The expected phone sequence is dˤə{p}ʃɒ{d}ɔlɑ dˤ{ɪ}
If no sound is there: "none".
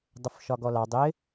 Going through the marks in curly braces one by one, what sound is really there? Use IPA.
f, ɡ, ɪ

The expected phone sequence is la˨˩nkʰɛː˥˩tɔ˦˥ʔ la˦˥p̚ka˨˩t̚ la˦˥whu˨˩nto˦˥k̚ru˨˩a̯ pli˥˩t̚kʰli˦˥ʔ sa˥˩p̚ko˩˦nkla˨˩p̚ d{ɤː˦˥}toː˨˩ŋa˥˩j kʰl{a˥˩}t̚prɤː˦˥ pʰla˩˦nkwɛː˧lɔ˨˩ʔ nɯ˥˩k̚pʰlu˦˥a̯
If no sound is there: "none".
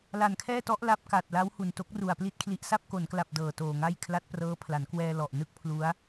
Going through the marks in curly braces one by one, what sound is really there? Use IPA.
ɤː˨˩, a˦˥

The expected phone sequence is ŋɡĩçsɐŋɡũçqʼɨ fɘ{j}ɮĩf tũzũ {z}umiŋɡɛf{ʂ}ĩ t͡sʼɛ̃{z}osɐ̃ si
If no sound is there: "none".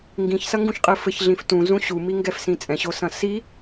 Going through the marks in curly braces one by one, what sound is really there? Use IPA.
ç, ɕ, s, ɕ

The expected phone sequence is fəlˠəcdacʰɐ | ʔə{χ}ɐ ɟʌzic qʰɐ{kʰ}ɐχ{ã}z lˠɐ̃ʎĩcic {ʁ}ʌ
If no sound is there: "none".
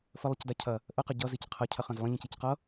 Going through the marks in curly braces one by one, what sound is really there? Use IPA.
q, cʰ, ɐ̃, q

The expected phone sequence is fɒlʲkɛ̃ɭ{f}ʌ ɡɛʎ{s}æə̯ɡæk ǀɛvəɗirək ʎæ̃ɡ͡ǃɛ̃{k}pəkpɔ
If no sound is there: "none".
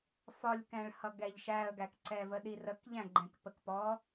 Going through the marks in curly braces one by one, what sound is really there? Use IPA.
h, ʃ, k

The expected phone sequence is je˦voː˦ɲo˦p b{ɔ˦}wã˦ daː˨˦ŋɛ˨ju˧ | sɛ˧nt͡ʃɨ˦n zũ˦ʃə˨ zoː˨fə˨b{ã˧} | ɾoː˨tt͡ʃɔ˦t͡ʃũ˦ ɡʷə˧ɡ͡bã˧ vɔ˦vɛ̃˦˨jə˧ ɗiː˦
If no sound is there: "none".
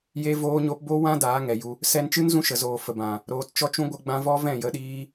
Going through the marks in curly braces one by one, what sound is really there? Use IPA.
o˦, ã˨

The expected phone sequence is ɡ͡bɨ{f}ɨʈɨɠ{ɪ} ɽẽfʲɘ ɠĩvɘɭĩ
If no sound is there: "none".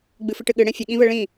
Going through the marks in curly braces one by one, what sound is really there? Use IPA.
f, ɨ

